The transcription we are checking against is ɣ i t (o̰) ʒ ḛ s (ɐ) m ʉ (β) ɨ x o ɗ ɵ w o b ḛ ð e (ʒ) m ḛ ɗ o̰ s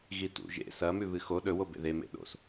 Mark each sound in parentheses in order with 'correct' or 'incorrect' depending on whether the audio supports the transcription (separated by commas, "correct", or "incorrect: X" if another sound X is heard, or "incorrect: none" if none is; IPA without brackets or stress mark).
incorrect: ṵ, correct, correct, incorrect: none